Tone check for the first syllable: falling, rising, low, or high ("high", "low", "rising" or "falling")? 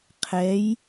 rising